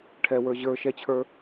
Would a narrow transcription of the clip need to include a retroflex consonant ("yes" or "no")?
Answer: yes